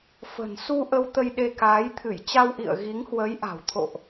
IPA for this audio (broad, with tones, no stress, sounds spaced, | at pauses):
f ə̤˨˩ n s u˧ ʔ ə˧ w t̪ ə˧ j ɗ e˧ k aː˨˦ j t̪ʰ ɨ˧˩ j t͡ɕ a˧ w ʔ ḭ˧˨ ə̯ ɣ i˨˦ ŋ h w ə˨˦ j ʔ a̤˨˩ w t̪ʰ o̰˧˨ ʔ